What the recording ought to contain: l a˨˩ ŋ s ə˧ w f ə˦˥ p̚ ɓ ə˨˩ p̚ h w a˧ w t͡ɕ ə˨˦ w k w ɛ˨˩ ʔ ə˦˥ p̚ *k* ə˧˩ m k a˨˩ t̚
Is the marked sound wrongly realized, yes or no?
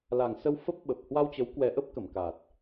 no